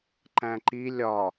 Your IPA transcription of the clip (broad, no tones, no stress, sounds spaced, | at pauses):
ǃ æ̃ ǃ i lʲ ɒ